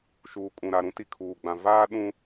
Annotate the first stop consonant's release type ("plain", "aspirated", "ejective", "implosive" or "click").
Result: ejective